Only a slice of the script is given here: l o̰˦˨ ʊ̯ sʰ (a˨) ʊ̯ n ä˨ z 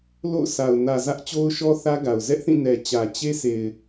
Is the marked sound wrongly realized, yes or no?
no